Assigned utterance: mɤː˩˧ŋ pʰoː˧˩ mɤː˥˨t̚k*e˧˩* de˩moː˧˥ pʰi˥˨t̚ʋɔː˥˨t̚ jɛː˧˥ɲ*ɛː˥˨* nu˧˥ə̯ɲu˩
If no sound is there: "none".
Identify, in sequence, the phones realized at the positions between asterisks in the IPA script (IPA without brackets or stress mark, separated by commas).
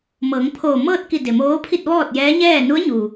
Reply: i˧˩, ɛː˥˨